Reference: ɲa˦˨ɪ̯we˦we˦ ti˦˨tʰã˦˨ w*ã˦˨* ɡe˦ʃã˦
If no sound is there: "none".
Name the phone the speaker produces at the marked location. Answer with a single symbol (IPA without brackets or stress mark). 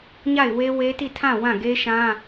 ã˦˨